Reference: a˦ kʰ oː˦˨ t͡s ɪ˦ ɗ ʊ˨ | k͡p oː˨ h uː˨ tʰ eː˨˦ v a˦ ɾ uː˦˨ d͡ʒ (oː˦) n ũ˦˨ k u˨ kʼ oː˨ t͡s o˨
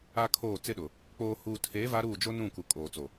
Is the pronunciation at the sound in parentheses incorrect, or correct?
incorrect